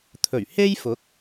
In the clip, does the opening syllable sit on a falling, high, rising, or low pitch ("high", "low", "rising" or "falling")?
low